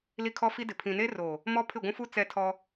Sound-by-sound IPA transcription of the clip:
l i˦ kʰ ɔ˦ f i˦ d ɪ˨ pʰ ĩ˨ n e˦ r o˨ | m ɔ˦ pʰ ɪ˦˨ ɡʷ ũ˦ f u˦ t͡s ɛ˦ tʰ ɔ˦

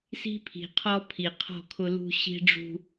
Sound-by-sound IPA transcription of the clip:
s i̤˦ pʰ i̤˨ qʰ ɔ˦ pʰ i˨ qʰ ɔ̤˦˨ kʰ ʊ˦ l ṳ˦ ɕ i̤˦ ɖ͡ʐ ṳ˦

